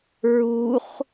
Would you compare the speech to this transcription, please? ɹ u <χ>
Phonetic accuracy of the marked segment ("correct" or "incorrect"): correct